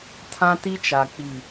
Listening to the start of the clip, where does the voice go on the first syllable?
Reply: high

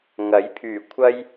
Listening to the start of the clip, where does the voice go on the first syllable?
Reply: rising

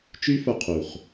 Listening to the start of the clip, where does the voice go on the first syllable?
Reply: high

